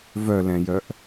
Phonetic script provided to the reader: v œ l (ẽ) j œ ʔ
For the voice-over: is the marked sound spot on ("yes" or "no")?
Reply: no